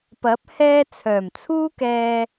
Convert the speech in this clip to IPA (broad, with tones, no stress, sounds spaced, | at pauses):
p ɐ˨˥ p̚ h ɛː˧ t͡sʰ œː˨˩ m t͡sʰ uː˥ k ɛː˧